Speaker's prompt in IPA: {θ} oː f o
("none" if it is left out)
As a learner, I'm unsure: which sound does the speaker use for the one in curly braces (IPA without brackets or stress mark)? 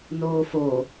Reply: n